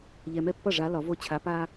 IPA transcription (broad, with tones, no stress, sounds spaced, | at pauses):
ʎ ɛ˨ m ɛ˥˩ pː ʌ˥˩ ʐ a˨˦ l ɒ˨˩˦ v o˦ t͡ɕʰ a˨˦ p a˦